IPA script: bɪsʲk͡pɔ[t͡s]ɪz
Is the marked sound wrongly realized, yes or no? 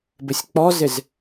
yes